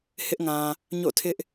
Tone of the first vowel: high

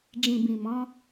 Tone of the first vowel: low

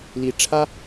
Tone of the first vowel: rising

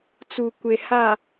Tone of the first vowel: low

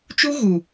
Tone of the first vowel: high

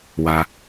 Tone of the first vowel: low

